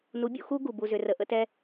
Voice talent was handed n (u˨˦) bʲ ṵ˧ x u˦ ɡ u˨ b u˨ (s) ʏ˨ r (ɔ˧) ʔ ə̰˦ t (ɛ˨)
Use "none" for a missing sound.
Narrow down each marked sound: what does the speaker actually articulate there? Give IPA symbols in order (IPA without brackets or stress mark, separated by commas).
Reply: u˨˦, z, ə˧, ɛ˦